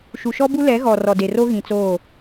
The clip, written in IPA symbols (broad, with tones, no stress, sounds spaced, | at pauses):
ʃ u˨ ʃ ɔ˦ b u˦ l ɛ˨˦ ɣ ɔ˨ r ɔ˨ d e˨ r o˦ ɣ ĩ˨ t͡s oː˦˨